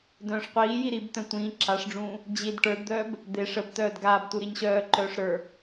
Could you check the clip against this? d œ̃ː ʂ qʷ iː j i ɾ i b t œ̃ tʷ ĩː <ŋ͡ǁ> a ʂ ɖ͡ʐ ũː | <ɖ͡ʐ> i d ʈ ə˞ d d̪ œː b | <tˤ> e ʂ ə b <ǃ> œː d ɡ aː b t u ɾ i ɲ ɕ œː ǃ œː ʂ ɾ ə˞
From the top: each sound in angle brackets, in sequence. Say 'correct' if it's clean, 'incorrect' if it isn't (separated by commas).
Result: incorrect, incorrect, incorrect, incorrect